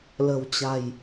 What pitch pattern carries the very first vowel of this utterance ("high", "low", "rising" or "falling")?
low